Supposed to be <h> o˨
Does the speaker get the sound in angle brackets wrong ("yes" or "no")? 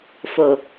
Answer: yes